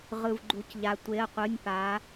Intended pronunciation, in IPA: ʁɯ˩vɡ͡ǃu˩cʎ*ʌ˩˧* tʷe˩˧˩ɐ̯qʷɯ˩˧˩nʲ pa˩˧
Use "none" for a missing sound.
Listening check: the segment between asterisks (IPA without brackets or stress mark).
a˩˧